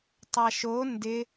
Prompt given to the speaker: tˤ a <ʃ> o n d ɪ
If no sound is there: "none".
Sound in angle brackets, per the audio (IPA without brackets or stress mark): ʃ